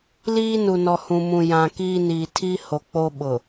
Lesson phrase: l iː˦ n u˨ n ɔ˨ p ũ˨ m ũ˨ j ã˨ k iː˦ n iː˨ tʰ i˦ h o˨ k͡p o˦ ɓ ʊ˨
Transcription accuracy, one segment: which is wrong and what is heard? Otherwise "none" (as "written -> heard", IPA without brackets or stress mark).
p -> h